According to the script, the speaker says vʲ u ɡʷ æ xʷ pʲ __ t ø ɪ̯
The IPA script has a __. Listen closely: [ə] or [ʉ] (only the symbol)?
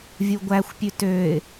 ʉ